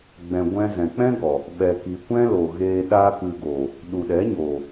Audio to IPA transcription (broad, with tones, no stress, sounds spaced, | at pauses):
ɡ͡b ɛ̃˨ ɡʷ ɛ̃˧ z ɛ̃˨ k͡p ɛ̃˦ ɡ ɔ˨ | ɓ ɛ˨ k i˨ kʷ ɛ̃˦ l o˨ ɣ eː˧ ɗ aː˦ k ɨ˧ ɡ o˨ | ɗ u˨ ɗ ɛ˨˦ ɲ oː˨